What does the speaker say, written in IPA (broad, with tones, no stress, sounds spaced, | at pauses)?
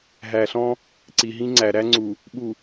ɦ æ˨ ɬ ɔ̃˦ | ǀ i˨ ɦ ĩ˦ ŋ͡ǀ æ˨ ɾ æ˦ ŋ͡ǀ u˨ | ɓ u˨